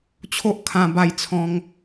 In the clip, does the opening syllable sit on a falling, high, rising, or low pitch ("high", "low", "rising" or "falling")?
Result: high